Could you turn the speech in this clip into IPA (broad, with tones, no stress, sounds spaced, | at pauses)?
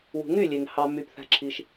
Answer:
w ṳ˨ ŋ y˦˨ lʲ e˨ ŋ h ɑ˨ m y˨ p θ æ̤˧ ǁʰ i˧ ʃ